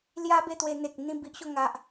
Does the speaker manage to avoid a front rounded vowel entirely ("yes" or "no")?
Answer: yes